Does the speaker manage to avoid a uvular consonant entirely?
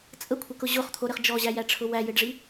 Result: no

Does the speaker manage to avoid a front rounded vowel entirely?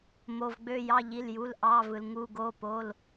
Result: no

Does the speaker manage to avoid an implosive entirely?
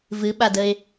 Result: no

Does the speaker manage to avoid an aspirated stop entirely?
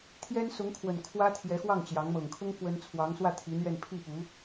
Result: no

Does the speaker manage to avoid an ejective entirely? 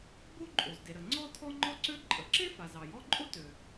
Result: no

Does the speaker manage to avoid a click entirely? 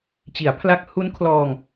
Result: yes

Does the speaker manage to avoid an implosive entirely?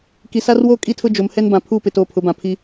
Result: yes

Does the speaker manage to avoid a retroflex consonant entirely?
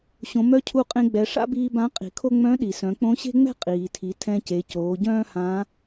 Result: no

